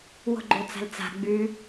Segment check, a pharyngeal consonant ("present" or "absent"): absent